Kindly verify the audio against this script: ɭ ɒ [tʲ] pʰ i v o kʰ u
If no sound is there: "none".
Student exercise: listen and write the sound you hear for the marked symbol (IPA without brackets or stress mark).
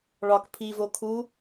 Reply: k